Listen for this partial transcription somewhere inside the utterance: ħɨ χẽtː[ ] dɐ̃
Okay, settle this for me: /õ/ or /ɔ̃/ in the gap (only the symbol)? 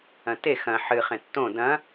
õ